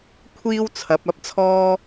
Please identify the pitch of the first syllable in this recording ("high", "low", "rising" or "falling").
high